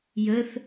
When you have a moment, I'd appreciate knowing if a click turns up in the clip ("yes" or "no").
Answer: no